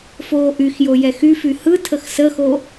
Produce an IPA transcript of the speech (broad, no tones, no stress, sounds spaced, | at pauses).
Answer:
f oː ʔ y x j o j ɛ x y f y h ɯ tʰ ə x s ə x o